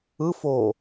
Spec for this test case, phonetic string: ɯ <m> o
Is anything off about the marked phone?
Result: yes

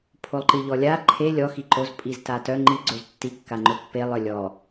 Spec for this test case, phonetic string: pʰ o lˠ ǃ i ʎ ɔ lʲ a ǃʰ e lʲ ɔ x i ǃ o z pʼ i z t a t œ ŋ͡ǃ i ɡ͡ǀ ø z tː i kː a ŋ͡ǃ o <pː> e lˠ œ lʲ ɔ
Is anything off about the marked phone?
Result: no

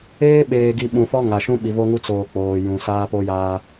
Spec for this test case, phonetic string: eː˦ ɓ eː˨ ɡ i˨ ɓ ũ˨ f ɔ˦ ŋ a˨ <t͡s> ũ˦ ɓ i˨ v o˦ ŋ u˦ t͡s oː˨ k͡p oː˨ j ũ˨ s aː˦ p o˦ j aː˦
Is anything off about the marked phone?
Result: yes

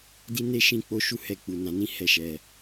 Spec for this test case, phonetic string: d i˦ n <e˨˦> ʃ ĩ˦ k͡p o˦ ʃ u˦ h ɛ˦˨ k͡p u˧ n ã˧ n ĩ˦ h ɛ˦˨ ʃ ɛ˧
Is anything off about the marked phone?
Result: yes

